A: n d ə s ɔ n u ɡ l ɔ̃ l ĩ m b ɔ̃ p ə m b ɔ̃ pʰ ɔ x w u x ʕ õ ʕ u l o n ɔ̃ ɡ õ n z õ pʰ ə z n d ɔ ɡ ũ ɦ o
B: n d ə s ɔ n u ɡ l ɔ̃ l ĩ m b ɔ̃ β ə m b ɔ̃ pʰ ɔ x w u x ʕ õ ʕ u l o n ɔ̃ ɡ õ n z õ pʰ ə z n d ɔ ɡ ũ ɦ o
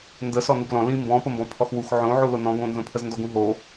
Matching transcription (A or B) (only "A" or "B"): A